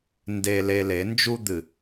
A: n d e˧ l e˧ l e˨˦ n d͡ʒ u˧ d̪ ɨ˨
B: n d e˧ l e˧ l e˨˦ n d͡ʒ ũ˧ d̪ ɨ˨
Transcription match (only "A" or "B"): A